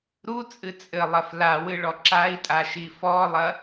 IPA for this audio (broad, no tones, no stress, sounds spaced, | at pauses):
ɾ u t͡sʼ ɨ t͡sʼ ɘ lˠ ɐ f l a w ɨ ɭ ɔ ǁ a i̯ tʼ a ʃ i f ɔ lˠ ɐ